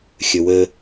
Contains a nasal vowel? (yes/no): no